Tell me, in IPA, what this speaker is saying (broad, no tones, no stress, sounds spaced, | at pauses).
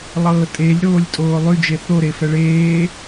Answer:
lˠ ɤː tʼ e lʲ ɾ oː lʲ tʼ oː lˠ y d͡ʒ e θ o ɾ e f ɛ ɭ eː